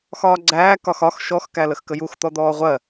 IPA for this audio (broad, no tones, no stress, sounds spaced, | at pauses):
x ɒː ɡ͡ǀ æː k ɒ x ɒ x ʃ ɔ x k æ l ə x k ə j u x t̪ ɔ d̪ ɔː ʁʷ ɜ